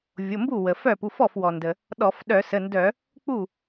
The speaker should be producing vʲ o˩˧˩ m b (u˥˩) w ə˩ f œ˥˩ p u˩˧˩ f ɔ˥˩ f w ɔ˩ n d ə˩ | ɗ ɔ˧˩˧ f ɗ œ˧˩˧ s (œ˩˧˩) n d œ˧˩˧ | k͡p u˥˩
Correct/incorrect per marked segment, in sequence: correct, incorrect: ə˩˧˩

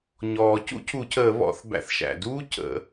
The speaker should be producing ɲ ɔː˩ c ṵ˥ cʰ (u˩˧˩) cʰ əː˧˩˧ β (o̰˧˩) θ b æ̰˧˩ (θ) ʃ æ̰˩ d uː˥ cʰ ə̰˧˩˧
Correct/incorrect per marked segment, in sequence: incorrect: u˧˩˧, incorrect: ɔ̰˧˩, correct

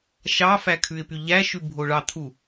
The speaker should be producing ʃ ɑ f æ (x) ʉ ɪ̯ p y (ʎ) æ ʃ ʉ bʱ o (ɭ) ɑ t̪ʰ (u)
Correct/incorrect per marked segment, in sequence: incorrect: kʰ, correct, correct, correct

